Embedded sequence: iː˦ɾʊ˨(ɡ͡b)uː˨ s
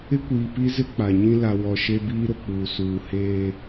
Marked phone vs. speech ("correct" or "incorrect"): incorrect